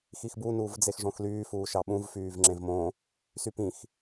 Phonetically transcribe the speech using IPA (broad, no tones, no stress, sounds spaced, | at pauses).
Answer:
x i x b u n uː v d͡z e x ʐ õ x l yː f uː ʃ ɑ ɓ ũ v f yː v ŋ͡ǁ ẽ v m õ | s y p ĩ x